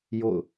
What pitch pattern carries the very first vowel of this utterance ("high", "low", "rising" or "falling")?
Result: falling